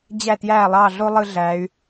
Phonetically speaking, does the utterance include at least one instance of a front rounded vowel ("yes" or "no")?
yes